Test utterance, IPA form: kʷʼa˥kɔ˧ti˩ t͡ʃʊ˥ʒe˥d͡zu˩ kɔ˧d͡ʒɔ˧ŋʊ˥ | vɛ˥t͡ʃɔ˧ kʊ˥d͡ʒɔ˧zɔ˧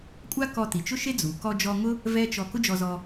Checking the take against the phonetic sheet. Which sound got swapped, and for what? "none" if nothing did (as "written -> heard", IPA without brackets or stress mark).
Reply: ʒ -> ʃ